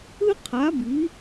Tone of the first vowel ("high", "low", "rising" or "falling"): high